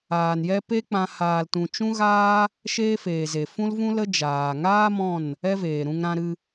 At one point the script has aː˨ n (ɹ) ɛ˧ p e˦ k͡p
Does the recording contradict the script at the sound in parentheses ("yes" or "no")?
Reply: yes